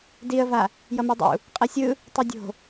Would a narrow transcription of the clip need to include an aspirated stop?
no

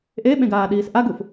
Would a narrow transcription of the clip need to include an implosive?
yes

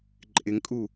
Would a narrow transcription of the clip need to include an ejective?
yes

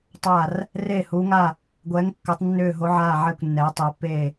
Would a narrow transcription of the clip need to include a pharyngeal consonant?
yes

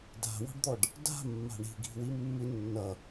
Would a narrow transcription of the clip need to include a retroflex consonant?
yes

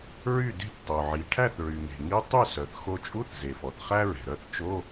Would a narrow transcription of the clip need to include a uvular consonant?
yes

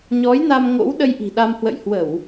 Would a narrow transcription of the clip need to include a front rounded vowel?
no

